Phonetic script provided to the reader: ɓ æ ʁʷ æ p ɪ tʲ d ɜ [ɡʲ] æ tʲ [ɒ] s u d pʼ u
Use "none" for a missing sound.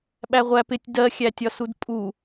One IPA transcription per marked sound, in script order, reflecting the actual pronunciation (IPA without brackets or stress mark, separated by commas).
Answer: xʲ, ɒ